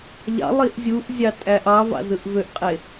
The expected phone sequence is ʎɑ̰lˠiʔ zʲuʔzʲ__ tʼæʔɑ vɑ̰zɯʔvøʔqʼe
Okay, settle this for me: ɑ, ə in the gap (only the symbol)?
ɑ